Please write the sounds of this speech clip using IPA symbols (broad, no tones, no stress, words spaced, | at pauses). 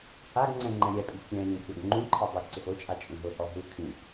haɡŋ͡ǀɛ̃ ŋ͡ǃɛ̃ɾʲɛpʼi kʲɛ̃ lʲɛ̃kʲɔɡŋ͡ǃũǃʰɛ dˤuɡǀɪx ot͡ʃʼa t͡ʃʼũɦʊhɔ ɦu kʰĩp